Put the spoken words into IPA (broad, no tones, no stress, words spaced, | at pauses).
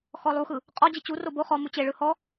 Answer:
xɔlˠuxɯ | qʼɔ d͡ʑit͡ɕuro bo χɔ mut͡ɕeɭɯ hɔ